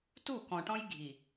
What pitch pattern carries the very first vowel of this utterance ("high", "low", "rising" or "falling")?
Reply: falling